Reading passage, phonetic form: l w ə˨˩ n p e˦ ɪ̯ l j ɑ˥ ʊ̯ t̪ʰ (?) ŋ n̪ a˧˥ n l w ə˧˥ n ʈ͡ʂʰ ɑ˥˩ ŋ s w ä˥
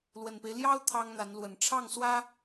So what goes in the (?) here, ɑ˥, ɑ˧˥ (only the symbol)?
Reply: ɑ˥